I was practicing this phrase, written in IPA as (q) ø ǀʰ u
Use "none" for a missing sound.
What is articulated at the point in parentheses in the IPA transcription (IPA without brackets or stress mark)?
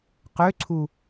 q